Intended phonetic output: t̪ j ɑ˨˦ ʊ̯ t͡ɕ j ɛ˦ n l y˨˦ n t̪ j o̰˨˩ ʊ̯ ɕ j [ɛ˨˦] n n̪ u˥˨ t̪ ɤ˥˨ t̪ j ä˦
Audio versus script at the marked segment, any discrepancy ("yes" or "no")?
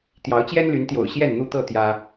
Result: yes